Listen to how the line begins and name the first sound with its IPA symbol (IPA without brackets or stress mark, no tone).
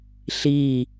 ɬ